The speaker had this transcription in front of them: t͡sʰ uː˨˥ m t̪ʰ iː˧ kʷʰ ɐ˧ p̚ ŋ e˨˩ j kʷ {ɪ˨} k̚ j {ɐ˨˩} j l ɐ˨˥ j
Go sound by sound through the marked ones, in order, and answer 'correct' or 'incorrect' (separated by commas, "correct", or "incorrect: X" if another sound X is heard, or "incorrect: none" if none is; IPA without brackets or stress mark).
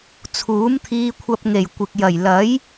correct, correct